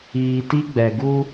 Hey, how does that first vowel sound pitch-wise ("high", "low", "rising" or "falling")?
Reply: low